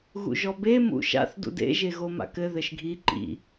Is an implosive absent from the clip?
yes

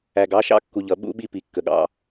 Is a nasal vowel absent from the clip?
yes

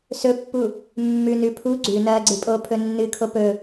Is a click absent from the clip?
no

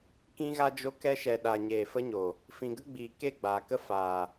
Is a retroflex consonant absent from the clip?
yes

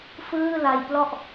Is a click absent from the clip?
yes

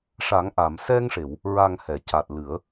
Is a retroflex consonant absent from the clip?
no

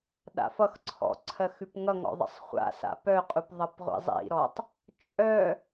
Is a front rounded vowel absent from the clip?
no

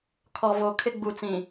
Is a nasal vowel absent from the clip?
no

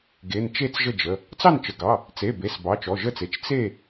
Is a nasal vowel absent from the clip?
yes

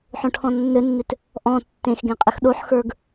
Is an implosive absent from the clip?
no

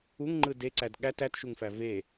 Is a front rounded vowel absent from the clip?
yes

